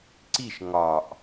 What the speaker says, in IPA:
ǀ i ʃ ŋ ɒ ʔ

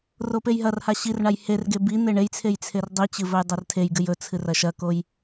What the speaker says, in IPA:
r o p e j ɦ ɐ r h a ɕ i r ɳ a j h e r ɡ e b i n̪ e ɳ e j t͡sʰ e j t͡sʰ e r dˤ i t͡ɕ ɨ v ɵ j dˤ ɵ r tʰ e j ɡ ɨ j ɵ t͡sʰ ɨ r ɐ ʃ ɐ k o j

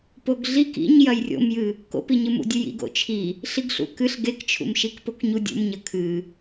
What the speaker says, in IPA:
p o ɡ ɮ i k ḭ ɲ j ɐ j rʲ o̰ m j ɨ | k o̰ p i ɲ ɨ m ṵ dʲ ʉ j ḭ ɡ o̰ t͡ʃʰ i | ɬ i ɡ ɬ ṵ k ɨ ɬ ɡ e k t͡ʃʰ ṵ m ʃ i k p o k ɲ u dʲ ṵ m ɲ ɐ kʰ ɨ

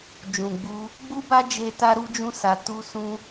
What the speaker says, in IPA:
d͡ʒ ũ˨ ɡ͡b u˧ | ɡ͡b u˦ b a˦ d͡ʒ e˦ t a˦ ɾ u˦ d͡ʒ ũ˦ s a˧ t u˦ s ũ˦

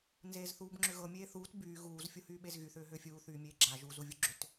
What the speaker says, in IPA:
n z eː z θ uː b ŋ͡ǁ ʏ ɣ ɤ mʲ eː θ uː t b yː ɣ uː z fʲ u h yː ɓ e z ɣ y θ ʏː ɦ ʏː fʲ uː θ yː mʲ eː ɡ͡ǁ a ʒ u z u vʲ u ɡ͡ǁ ʏ t

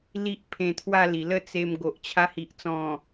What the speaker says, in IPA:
l i˦ ʔ pʰ ẽ˧ t̪ʰ w a˥˧ l i˨˩ l ə˥˧ t͡s e˧ m ɡ o˨ ʔ t͡ɕʰ a˧ h i˨ ʔ t͡s ɔ̃˨˩

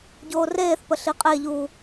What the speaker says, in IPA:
ɟ oː r eː θ p ə ɬ i qʼ e ʎ uː

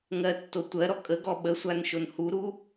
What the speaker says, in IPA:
ŋ ɜ tː o tʷ ɜ ɾ ɔ kʼ ə ɡ ɔ ɓ ə sʷ a n ʃ o n h u ɾ u

